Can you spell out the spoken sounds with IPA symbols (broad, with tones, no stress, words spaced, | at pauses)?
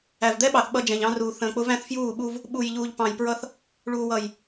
æ˨vd̪ɛ˦ɓɑ˨θ ɓʌ˦d͡ʒɛ̃˨ʎɑ̃˦ruː˨ θə̃ː˨k͡pʊ˦ væ̃˦θfjuː˦˨ɓu˦v | ɓu˨jʎuː˨ʎ pɑ̃˨jpɹʌ˦θ | ɭuː˨wʌ˨j